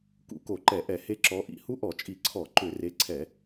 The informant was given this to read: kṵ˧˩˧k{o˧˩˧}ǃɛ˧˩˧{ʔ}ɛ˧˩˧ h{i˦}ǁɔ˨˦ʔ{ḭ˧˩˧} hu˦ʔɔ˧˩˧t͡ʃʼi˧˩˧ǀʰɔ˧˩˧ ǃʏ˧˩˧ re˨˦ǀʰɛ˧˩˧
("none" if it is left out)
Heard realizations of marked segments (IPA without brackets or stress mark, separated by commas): o˧˩˧, ʔ, e˦, ḭ˧˩˧